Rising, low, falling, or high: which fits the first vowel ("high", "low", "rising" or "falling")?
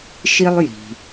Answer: high